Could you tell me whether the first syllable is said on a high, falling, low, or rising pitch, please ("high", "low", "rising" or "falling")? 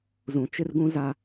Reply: low